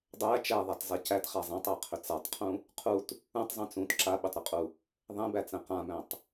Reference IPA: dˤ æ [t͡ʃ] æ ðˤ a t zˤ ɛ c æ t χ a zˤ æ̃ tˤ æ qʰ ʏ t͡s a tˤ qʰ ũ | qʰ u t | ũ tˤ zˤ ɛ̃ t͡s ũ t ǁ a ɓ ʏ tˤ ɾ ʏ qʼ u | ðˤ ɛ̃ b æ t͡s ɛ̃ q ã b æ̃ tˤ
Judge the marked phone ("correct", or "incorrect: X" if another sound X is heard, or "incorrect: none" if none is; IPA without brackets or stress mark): correct